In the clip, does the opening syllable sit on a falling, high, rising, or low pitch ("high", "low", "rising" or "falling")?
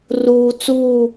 low